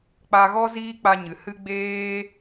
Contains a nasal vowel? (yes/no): no